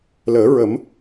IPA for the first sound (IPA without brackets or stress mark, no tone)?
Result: l